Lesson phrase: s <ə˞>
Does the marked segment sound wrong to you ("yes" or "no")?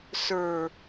no